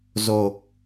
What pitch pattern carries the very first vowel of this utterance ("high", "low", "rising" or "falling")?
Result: low